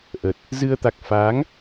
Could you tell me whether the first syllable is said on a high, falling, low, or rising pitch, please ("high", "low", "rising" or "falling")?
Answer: low